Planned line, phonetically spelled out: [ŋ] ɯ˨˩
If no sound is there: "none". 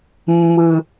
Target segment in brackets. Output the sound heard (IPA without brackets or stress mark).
mː